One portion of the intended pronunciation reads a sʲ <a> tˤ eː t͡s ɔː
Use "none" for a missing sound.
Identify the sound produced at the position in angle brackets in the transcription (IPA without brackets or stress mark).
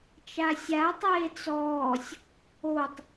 a